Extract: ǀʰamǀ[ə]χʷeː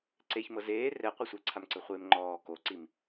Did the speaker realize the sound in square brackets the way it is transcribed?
no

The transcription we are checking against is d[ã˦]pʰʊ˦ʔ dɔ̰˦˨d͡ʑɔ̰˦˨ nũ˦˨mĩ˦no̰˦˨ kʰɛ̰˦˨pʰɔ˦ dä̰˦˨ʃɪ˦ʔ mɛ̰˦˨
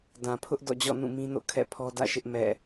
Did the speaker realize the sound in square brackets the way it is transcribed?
no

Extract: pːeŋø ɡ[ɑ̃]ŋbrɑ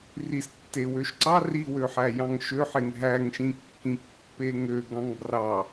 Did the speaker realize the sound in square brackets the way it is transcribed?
yes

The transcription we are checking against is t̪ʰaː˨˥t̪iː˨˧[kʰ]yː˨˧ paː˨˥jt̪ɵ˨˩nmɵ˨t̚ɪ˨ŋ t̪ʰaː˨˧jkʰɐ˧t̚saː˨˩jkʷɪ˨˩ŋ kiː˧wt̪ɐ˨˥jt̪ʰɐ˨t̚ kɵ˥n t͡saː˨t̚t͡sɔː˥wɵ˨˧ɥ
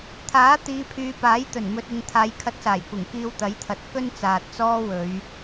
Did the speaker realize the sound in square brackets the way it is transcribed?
no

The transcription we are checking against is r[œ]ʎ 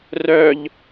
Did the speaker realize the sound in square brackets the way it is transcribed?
yes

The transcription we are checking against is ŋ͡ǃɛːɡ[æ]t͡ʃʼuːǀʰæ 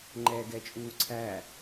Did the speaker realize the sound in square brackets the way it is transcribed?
no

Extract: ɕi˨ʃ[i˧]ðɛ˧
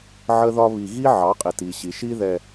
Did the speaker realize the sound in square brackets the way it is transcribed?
no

